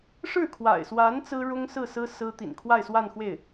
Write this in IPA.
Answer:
ʂɻ̩˥˩kʰwa̰˨˩ɪ̯swa˧˥n t͡sɹ̩˥ɻʊ˥ŋsɹ̩˥˩ sɹ̩˥ sɹ̩˥ t̪ḭ˨˩nkʰwa˥˧ɪ̯ swa˥˧nxwe˥˩ɪ̯

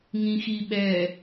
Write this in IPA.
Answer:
ŋĩxiɓɛ

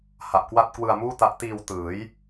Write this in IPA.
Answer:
ha˨˩ʔkwa˥˩t̚ kwɯ˧a̯muː˥˩ta˦˥ʔ tiː˧w tɯː˩˦j

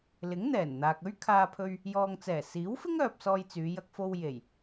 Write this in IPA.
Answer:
lɪ˨˥ŋn̪ɛː˨˩nn̪aː˨k̚ɵ˥ɥ kʰaː˧pʰɵ˧ɥ | jɔː˨ŋt͡sɛː˨˩siː˨˥wfɪ˥ŋ œː˧p̚sɔː˧jt͡syː˨˧ jɐ˧k̚fo˧w je˨˩j

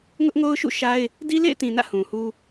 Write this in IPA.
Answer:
ŋʊ˦ʔŋo˦ʊ̯ʃṵ˦˨ ʃa˦ɪ̯ | di˦lḛ˦˨ɪ̯tĩ˨nä̰˦˨ hũ˨hu˦

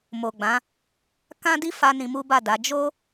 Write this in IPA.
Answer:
mo˨ɡ͡bã˨˦ | kã˦di˦fa˧ nĩ˧mu˦ba˦˨da˨˦ d͡ʒo˦

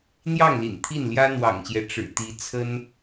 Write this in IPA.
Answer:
n̪jɑ˥˩ŋlḭ˨˩n t̪ʰi˥˩nljä˥n̪wɑ̰˨˩ŋɕjɛ˦ ʈ͡ʂɻ̩˨˩t̪i˧˥t͡sʰə˥n

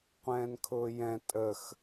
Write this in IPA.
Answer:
qʷɛ̃ːnkʰʊːjɛ̃ tʼəx

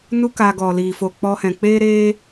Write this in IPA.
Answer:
nu˦k a˧ɡɔ˨ liː˨fo˨ k͡pɔ˧hɛ̃˨ k͡peː˦ɾeː˦

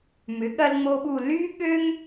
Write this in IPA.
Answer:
mʏ˩˥ɠɐ˦lŋ͡mo˦ɓu˦˨ ly˦ɠø˦ŋ

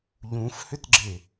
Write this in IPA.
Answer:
ʎũfhʏtɡ͡ǁe

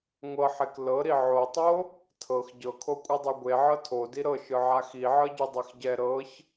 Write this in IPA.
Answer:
ŋʷɤħek lɤɾi ʕotˤo | tʰɤx ɟɤkʰokʷʼɯdˤu ɡʷeʕɤ tʰodi ɾɤʃɯ ʕaxiʕɤɟɯ dˤɛxɟɛ ɾɤç

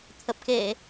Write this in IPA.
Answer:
t̪ʰə˨˩p̚ke˧˩˨

